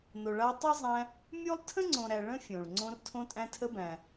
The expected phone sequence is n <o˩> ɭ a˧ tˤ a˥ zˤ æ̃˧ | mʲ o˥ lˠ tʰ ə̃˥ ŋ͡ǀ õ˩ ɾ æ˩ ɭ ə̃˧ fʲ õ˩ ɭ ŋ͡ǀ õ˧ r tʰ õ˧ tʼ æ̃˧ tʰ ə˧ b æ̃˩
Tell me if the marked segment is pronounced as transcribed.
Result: yes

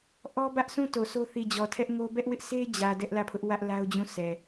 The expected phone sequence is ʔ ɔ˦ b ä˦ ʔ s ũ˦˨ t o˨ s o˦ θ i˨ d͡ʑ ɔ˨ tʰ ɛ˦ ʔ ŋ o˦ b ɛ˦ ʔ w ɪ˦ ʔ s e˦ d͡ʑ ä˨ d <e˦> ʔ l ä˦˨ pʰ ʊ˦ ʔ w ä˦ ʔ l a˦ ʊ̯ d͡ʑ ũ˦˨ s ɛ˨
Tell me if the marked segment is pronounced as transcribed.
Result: no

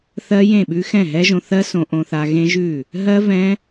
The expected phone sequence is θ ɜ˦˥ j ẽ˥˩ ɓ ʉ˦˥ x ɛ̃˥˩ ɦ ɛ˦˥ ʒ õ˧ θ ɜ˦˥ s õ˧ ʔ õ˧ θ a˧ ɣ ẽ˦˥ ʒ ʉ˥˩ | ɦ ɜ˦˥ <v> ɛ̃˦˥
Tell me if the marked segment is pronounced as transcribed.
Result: yes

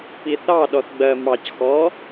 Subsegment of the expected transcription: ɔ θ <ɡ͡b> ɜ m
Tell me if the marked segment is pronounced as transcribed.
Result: yes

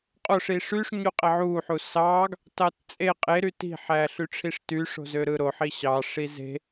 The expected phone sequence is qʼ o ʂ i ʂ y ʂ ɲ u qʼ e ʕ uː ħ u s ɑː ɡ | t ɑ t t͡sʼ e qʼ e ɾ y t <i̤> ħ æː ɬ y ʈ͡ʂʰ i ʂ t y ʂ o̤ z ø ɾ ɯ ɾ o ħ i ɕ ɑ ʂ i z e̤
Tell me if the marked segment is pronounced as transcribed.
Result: yes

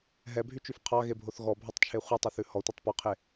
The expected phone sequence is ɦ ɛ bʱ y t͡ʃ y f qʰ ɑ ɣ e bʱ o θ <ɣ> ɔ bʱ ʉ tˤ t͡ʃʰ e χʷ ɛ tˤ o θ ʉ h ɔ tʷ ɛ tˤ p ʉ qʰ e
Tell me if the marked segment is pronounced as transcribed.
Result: yes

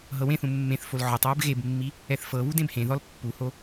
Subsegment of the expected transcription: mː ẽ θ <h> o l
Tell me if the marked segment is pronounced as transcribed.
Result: no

